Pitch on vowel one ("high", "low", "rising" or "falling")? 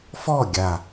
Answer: falling